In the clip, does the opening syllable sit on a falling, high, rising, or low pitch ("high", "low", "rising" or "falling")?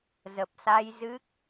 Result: low